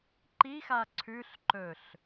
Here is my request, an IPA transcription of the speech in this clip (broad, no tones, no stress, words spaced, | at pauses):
ǃixa ǀʰʉɬ ǃɵɬ